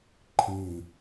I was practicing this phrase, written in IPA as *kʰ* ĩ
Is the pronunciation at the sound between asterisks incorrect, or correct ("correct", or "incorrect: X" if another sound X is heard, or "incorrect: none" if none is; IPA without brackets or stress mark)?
incorrect: ǃʰ